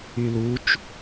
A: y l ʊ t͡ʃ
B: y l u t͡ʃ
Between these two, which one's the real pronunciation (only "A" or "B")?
B